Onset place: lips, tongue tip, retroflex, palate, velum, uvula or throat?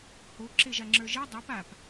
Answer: throat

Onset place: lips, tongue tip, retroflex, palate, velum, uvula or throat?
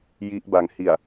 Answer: palate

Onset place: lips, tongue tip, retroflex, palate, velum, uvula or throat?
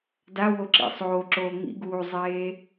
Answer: tongue tip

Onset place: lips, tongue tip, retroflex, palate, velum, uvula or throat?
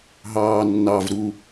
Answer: throat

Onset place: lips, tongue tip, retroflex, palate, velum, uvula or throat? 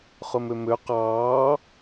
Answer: uvula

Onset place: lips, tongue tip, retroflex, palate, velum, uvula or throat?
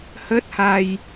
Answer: throat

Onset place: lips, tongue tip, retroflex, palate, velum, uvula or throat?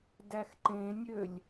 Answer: tongue tip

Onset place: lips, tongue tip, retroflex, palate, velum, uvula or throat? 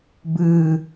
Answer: lips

